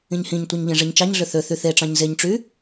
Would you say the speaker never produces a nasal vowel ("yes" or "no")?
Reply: no